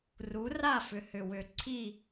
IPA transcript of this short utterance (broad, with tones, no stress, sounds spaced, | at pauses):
r u˨˥ r a˥˨ f ʏ˨˩ h ʏ˨˩ w ʏ˨˩ ǀʰ i˥˨